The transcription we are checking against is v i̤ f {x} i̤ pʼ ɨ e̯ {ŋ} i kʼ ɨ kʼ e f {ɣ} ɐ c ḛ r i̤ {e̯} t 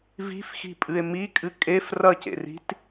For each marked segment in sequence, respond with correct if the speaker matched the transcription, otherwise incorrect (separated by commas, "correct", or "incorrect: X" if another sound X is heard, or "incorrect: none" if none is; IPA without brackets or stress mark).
correct, incorrect: m, incorrect: r, incorrect: none